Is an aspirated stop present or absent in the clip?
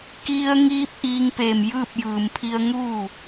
present